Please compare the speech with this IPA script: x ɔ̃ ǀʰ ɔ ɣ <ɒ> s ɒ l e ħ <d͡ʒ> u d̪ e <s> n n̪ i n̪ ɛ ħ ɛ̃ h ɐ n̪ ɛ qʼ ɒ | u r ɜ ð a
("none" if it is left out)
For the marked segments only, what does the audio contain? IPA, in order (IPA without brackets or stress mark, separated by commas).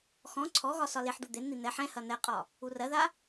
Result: ɒ, d̪, none